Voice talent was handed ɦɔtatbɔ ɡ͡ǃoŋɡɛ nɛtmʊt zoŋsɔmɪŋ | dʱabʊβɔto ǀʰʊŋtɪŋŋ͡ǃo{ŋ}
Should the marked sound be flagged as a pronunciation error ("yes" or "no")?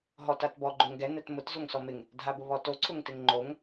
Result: no